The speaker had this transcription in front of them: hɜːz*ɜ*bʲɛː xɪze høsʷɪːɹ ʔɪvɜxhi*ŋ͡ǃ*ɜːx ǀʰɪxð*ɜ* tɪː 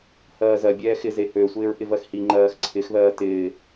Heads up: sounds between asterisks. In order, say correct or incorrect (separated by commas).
correct, correct, incorrect